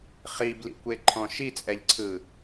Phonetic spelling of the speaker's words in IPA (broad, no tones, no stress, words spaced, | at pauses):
χiblḭkʷeǃʰɔ̃ ʃit͡sʼɛʎǀʰɯ